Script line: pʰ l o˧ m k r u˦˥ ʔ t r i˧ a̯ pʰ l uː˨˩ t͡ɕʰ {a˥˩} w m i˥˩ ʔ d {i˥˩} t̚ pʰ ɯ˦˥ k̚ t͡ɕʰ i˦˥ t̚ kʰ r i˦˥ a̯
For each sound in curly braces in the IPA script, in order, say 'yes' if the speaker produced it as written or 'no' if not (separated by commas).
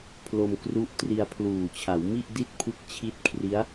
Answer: no, yes